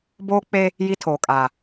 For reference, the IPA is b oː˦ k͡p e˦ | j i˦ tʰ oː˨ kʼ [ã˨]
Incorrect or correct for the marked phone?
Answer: incorrect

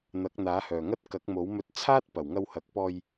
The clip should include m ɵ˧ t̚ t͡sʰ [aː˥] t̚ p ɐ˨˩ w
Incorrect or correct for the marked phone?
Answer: correct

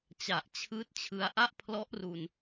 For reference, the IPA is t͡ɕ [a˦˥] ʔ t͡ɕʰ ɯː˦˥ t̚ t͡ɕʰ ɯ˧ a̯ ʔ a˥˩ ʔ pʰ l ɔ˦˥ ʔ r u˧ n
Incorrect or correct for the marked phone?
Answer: incorrect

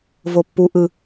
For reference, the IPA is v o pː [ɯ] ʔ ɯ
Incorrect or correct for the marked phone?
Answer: incorrect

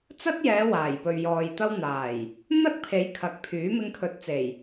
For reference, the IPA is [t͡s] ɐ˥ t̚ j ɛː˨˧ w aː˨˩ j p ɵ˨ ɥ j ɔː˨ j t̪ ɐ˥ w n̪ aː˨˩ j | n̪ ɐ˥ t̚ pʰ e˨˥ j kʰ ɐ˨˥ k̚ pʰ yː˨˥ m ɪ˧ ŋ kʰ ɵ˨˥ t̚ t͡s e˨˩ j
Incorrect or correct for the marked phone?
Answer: correct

